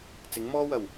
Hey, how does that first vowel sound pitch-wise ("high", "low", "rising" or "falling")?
rising